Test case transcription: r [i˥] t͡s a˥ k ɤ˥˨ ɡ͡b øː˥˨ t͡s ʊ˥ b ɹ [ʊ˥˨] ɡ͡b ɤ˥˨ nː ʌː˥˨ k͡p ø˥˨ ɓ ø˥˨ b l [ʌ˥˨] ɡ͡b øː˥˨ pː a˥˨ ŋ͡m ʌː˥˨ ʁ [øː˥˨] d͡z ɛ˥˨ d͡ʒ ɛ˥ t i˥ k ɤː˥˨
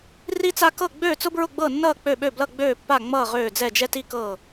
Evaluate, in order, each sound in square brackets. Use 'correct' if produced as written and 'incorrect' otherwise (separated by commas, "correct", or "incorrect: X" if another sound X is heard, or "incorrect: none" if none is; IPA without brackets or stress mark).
correct, correct, correct, correct